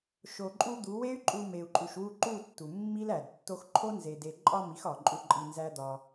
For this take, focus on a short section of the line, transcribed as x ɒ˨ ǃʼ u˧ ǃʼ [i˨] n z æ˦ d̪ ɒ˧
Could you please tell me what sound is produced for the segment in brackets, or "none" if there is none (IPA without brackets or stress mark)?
i˧